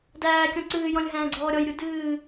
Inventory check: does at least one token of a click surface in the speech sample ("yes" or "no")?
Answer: yes